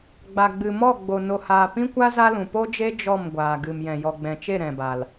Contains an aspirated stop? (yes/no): no